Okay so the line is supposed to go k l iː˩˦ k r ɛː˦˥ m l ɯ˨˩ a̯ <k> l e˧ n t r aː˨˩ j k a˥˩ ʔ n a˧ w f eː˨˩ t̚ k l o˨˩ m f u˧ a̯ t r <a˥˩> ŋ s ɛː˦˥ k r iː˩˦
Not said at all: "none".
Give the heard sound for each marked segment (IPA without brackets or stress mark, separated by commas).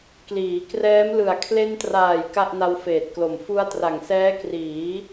kʰ, a˨˩